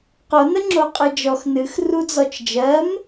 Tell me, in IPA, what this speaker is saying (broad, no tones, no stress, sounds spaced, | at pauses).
q o n ə ŋ͡ǁ o qʼ ɨ d͡ʒ ɔ x n ɨ x r u d͡z ɔ t͡ʃ d͡ʒ ɜ m